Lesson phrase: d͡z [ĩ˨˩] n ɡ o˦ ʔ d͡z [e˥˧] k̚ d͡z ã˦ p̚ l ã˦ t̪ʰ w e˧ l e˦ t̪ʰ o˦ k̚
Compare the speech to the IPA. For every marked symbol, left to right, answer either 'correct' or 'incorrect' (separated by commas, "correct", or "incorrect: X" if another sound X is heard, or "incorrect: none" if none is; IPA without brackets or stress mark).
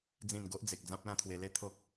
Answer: correct, incorrect: e˨